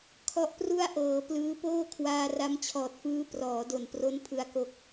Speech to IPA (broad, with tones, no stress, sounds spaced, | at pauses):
kʰ ɔ˦˥ ʔ p r u˥˩ a̯ ʔ ɤː˩˦ p l ɯː˦˥ p oː˥˩ kʰ w aː˧ r a˦˥ m t͡ɕʰ ɔː˨˩ t̚ f ɯː˦˥ p r ɔː˩˦ d o˨˩ n p r o˦˥ n pʰ ɯ˧ a̯ k o˦˥ k̚